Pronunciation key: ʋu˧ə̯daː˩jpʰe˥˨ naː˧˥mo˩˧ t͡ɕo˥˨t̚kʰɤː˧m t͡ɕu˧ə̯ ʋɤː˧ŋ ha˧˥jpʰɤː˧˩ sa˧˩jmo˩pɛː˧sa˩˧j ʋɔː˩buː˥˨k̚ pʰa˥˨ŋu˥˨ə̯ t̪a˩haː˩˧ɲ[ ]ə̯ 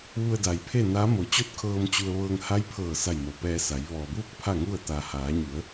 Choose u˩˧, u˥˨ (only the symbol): u˩˧